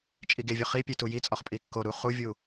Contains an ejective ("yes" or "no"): yes